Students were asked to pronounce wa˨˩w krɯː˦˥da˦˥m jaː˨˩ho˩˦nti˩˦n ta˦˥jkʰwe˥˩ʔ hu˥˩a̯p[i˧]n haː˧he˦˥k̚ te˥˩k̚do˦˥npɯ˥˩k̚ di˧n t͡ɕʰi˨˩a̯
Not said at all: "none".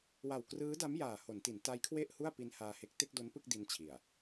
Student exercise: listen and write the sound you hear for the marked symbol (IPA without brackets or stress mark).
i˦˥